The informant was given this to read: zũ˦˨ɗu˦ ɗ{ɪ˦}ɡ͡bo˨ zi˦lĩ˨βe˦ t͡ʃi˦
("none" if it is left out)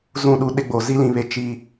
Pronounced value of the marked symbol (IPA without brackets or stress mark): ɪ˦